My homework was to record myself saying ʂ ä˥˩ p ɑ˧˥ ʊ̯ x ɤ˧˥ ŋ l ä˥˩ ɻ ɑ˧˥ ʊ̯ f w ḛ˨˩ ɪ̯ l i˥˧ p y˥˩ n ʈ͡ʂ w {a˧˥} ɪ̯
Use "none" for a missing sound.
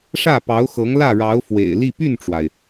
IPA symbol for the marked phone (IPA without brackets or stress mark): a˩